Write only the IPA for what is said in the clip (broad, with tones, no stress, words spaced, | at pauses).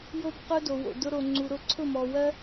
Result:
jo˦b qʊ˦do˨wo̰˨ dʊ˧ɾo˨ŋ͡ǀu˨ ɾʊ˧ǀʰʊ˦˨mɔ˨ wɜ˦